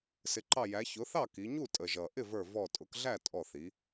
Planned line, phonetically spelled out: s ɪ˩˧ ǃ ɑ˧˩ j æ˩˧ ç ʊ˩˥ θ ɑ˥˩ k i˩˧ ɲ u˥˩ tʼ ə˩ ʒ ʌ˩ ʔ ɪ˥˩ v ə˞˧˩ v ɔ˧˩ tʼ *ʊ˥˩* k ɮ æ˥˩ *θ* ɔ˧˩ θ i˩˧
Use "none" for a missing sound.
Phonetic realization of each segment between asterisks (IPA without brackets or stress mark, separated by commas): ʊ˩˥, tʼ